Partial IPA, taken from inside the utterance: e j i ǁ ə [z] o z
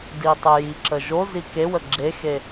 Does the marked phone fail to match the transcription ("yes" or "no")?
yes